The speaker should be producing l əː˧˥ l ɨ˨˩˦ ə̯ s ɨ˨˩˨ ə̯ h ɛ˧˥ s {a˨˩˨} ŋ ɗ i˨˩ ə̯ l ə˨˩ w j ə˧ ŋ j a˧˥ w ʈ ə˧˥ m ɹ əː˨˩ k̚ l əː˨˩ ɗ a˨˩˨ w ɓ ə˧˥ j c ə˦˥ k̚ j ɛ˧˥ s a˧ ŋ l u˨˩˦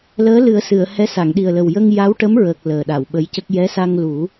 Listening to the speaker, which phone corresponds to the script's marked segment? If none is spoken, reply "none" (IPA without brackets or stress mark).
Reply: a˨˩˨